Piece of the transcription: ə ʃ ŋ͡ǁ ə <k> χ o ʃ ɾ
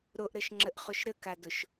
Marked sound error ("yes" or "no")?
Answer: yes